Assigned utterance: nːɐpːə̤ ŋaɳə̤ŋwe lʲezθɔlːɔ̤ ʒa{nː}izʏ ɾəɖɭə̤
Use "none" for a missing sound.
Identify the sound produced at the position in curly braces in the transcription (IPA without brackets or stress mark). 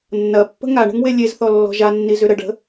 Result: nː